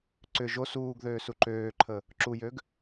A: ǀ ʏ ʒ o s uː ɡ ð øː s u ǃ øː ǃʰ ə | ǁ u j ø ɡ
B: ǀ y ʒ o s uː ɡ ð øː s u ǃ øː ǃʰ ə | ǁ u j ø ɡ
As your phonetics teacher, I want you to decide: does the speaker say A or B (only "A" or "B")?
A